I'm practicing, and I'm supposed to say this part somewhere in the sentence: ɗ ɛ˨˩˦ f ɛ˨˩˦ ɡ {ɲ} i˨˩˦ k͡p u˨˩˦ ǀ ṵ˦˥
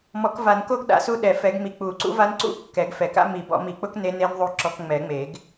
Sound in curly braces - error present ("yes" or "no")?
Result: yes